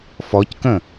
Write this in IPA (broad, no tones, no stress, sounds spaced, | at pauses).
f ɔ c k ə̃